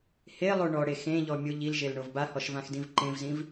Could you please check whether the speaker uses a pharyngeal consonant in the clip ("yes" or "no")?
no